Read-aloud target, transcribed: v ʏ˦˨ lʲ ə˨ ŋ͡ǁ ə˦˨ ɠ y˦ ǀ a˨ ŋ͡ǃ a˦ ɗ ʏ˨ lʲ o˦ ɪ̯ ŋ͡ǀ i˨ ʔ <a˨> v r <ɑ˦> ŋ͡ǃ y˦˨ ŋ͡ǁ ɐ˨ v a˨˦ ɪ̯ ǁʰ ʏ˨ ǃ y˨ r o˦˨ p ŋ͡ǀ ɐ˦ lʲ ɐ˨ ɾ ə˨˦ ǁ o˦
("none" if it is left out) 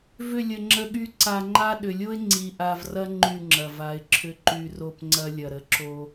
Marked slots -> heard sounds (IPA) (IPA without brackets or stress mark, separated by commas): a˨, ɐ˦